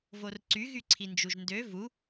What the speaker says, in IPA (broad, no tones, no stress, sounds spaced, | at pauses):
v o r ǀ y ɣ y ǀʰ i n d͡ʒ u ʒ n d ø v u